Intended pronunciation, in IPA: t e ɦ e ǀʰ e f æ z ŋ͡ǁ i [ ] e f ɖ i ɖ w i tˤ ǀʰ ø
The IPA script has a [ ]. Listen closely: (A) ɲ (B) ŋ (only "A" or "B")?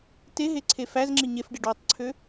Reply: A